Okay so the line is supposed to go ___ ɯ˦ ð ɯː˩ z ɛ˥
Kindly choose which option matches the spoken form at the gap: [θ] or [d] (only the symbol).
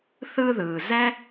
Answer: θ